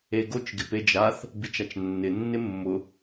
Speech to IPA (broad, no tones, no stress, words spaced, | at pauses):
eɡot͡ʃ ɡɪped͡ʒaθ | bit͡ʃat͡ʃnːɪ nːɪmːʊ